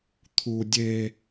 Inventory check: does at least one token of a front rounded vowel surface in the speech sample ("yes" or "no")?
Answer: no